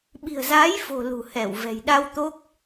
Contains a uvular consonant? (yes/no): no